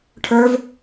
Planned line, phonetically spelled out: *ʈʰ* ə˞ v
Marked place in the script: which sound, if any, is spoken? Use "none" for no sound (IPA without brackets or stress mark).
ʈʰ